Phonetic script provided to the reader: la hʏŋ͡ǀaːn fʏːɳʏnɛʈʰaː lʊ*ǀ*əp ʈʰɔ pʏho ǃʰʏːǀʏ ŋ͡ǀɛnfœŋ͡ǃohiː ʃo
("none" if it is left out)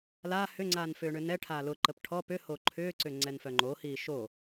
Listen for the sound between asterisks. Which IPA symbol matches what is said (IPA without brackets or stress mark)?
ǃ